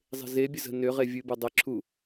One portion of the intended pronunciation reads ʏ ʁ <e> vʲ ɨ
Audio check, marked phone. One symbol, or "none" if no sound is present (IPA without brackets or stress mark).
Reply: e